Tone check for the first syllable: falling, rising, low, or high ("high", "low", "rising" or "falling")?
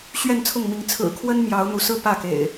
falling